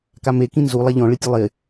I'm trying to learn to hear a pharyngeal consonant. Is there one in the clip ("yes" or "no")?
no